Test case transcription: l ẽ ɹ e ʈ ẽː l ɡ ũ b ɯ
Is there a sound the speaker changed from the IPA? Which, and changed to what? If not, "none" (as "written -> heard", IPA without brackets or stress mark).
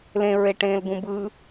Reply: none